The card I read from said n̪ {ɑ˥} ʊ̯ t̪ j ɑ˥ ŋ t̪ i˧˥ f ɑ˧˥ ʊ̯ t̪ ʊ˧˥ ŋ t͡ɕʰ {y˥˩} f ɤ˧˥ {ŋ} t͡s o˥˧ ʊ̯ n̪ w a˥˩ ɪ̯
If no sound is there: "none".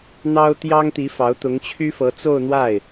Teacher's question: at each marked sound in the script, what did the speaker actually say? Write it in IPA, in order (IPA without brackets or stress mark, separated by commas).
ɑ˥, y˥, none